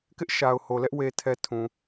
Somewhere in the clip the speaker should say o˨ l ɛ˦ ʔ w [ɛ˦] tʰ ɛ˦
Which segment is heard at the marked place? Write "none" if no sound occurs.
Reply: e˦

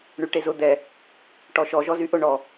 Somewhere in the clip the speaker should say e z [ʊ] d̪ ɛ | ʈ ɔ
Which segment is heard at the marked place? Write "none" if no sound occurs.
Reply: ʊ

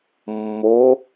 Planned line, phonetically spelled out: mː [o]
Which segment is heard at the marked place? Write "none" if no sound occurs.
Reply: o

